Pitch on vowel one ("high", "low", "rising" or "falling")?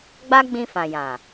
high